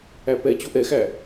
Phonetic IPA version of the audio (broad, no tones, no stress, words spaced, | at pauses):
æpɛ t͡ɕoʔɛxæ